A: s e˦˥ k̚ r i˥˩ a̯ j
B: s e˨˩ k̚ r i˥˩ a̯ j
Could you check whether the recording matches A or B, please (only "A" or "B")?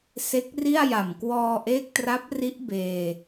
A